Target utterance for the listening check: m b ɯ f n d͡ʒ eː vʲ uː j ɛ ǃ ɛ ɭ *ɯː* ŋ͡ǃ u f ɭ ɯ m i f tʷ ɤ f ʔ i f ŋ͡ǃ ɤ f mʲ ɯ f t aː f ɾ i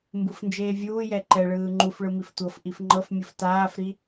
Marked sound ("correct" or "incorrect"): correct